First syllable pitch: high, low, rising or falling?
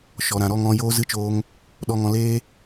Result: low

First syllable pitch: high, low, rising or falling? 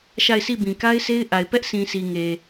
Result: falling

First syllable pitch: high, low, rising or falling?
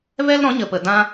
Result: high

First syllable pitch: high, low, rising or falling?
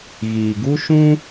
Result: low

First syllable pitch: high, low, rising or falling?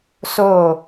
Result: falling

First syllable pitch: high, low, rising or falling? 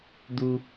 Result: low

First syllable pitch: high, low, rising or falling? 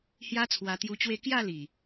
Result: high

